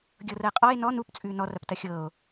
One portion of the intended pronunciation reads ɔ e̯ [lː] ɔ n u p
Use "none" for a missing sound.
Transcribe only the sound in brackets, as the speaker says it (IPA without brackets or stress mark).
n